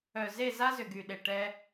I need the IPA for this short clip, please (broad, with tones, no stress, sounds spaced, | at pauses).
œ˨ z e˦˨ z a˦ z ʏ˨ ɡ y˨ ɗ e˨ ʈ ɛ˦